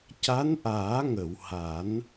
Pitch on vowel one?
rising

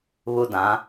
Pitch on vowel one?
high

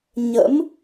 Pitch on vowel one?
rising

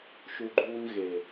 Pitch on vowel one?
low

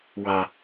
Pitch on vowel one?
low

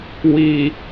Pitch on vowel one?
low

